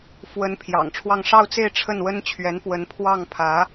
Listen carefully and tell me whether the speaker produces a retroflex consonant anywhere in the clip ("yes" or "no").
yes